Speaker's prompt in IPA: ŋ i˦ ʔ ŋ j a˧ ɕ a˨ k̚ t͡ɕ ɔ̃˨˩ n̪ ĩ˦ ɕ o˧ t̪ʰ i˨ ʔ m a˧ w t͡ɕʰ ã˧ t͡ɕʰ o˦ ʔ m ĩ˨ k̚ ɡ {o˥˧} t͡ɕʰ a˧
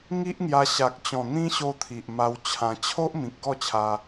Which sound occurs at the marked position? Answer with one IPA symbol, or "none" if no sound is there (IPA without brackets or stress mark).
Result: ɔ˥˧